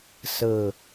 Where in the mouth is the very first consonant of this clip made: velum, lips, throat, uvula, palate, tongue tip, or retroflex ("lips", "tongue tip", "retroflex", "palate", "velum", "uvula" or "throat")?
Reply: tongue tip